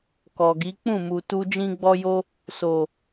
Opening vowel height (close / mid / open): mid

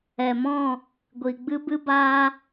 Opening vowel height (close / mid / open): mid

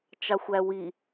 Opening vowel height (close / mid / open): open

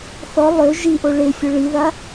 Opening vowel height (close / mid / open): mid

